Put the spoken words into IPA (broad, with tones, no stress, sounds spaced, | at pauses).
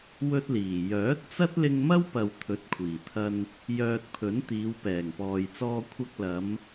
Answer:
w ɵ˥ t̚ l iː˨˩ j œː˨˥ t̚ t͡s ɐ˥ t̚ l ɪ˧ ŋ m ɐ˥ w p ɐ˨ w t̪ʰ ɵ˨˥ t̚ kʷʰ iː˨˩ t̪ʰ ɐ˧ n | j œː˧ t̚ pʰ ɵ˨˥ n t̪ iː˨˧ w p ɛː˨˩ ŋ p ɔː˨ j t͡s ɔː˧ kʷʰ ɐ˧ k̚ l ɐ˨˧ m